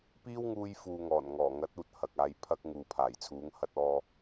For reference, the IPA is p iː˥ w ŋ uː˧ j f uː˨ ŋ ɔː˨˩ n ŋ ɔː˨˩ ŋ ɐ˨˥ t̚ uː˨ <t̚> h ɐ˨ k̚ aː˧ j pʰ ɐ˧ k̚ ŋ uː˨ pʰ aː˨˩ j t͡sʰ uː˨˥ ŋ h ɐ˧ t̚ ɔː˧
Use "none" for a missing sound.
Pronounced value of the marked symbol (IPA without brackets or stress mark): t̚